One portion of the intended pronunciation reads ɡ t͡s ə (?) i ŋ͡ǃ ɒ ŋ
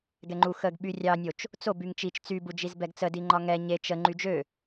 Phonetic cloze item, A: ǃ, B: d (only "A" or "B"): B